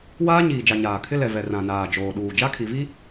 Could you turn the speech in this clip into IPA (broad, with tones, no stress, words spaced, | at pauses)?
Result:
waː˦ɲiː˨d͡ʒa˨ ɲaː˨kʰɪ˦lɛ˨vɛ˨ rã˨ naː˨d͡ʒoː˨ɗuː˨ d͡ʒa˦kʰi˨vi˦